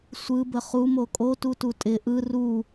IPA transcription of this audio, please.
sʷ ɯ b ə χ u m o kʼ o t u t u tʼ ɪ ʔ ɯ r u

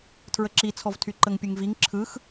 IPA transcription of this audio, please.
tʰ ɹ ə ǁ i t͡sʰ ɔ v tʰ y ǃ ə ŋ pʲ ɯ ŋ v i ŋ ǁʰ ɯ x

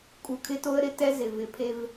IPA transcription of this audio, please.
kʼ u˨ kʰ ɪ˦ t o˦ ə̯ ɾ ɪ˦ t ɛ˦ z ɪ˨ v ɪ˨ pʰ e˦ v

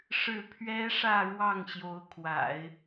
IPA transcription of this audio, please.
ʂ ɻ̩˥˩ pʰ ɥ ɛ˥ ʂ ä˥˧ ɻ w ɑ˥˩ ŋ ɕ j o˧˥ ʊ̯ kʰ w a̰˨˩˦ ɪ̯

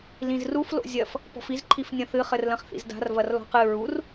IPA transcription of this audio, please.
l ĩ z r u f l o̰ zʲ ɐ f | p ɔ̤ f i z ǃʰ i f nʲ ɐ̃ θ ɨ χ ɘ r l ɐ̃ χ θ ḭ z d a̤ r v ɐ r l ɔ̤ q ɨ ɹ u r

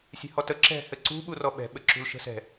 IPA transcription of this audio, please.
sʲ ɛ̤ h ɔ t ə ǁ ɛ̤ h ɘ ǀ ṳ ɓ u r ɔ ɓ ɛ̤ ɓ ɘ ǁ ṳ l ʃ ə̤ s ɛ̤

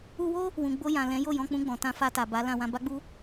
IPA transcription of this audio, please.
u˧ w o˦ | w ũ˨ ɡ͡b o˧ j ã˨ l ɛ̃˨˦ j o˦˨ j ɔ̃˧ k͡p ũ˧ ɡ͡b ɔ̃˨ t ã˧ f a˧ t a˨ b a˨˦ l ã˧ w ã˧ b a˦ ɡ͡b u˦

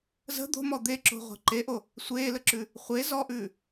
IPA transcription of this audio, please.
z ə̤ d̪ o̤ m ɔ d̪ e ǁ o̤ ʁʷ e̤ ǃ e ʔ o | sʷ eː l ə ǁ ʉ | χʷ e z ɔ ʔ ʉː

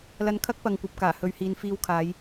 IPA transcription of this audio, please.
l ɐ˧ n kʰ ɐ˥ k̚ p ɐ˨ ŋ kʷ ɐ˨ p̚ k aː˨˩ h ɵ˨˧ ɥ h iː˨ n f iː˧ w kʰ aː˨˧ j

